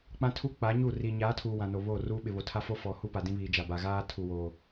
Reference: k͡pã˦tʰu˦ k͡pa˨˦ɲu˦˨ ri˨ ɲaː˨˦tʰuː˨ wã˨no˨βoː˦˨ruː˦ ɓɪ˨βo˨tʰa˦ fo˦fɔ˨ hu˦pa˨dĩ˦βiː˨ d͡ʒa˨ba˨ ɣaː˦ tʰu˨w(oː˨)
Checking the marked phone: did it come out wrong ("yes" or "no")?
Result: no